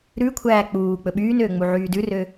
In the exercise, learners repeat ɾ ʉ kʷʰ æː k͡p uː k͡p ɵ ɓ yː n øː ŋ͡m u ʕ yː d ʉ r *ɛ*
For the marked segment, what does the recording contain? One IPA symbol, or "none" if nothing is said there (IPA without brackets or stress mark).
ø